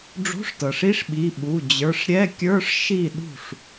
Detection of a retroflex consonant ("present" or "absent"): present